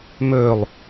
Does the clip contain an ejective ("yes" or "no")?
no